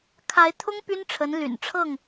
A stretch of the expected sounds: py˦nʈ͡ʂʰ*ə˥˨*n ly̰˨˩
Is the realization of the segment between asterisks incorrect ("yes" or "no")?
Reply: yes